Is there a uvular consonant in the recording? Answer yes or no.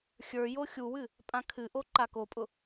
no